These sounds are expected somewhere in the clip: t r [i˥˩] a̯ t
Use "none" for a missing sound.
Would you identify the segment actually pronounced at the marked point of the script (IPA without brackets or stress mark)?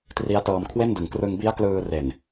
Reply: i˦˥